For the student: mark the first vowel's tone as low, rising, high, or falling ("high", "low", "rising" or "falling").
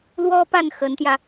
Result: high